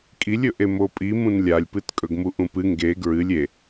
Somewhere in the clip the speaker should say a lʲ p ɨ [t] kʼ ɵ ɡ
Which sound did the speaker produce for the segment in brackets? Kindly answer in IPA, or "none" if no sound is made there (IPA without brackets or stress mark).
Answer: t